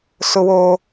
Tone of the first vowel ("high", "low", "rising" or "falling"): high